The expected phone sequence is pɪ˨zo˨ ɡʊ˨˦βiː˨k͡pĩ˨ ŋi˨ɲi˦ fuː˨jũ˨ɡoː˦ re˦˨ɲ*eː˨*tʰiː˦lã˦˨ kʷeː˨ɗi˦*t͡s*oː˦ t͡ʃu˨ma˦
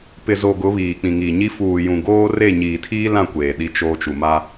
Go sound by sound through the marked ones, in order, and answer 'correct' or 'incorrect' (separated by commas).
incorrect, incorrect